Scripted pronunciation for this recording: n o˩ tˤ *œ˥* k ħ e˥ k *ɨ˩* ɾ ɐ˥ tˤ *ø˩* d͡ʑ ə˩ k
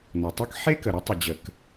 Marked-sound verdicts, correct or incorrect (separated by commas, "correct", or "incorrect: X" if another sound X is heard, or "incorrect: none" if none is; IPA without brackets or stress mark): correct, incorrect: ə˩, incorrect: ə˩